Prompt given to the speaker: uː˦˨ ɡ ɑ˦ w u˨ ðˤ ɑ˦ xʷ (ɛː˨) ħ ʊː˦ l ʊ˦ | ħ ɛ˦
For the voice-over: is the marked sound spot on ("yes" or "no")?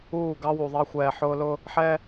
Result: yes